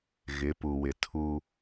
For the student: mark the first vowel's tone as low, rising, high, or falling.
rising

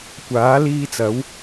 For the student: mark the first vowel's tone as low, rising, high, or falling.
rising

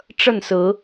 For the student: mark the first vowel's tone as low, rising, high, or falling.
falling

